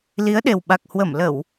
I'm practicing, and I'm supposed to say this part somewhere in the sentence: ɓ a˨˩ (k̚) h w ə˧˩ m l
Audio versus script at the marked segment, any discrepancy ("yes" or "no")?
no